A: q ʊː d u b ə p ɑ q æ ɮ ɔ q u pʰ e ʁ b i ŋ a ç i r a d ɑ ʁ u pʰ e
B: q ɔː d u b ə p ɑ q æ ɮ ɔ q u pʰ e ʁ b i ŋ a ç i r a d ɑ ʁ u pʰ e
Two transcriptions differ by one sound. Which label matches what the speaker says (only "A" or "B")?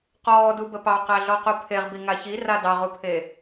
B